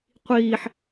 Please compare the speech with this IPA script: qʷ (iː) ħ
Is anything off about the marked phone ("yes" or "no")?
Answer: no